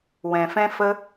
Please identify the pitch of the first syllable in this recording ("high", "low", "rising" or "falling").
low